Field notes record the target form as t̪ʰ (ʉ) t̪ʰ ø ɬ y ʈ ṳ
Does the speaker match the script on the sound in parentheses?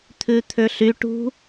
yes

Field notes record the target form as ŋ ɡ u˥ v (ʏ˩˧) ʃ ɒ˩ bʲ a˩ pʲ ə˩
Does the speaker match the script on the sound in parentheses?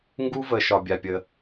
no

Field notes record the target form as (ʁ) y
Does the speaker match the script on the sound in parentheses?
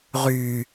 yes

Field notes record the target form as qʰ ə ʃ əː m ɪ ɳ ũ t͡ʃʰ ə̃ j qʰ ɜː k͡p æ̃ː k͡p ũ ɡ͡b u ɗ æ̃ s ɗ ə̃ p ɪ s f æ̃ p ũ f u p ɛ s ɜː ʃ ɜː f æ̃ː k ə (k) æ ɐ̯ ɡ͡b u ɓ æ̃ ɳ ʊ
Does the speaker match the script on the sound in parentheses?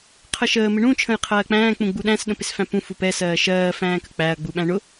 no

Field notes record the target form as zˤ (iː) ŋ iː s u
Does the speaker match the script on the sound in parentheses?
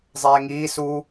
no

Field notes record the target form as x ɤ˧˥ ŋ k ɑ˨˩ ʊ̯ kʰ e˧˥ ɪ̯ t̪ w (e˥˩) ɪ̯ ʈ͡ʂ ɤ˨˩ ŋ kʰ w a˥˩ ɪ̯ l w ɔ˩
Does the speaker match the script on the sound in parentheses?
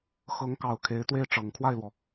yes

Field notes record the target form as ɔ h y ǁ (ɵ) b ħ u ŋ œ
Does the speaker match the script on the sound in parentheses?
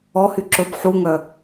yes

